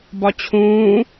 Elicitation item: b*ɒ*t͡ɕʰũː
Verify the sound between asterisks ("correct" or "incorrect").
correct